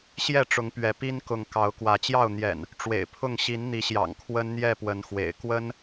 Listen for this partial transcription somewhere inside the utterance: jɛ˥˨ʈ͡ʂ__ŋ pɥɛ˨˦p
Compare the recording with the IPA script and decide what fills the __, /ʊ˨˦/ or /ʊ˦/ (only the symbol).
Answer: ʊ˨˦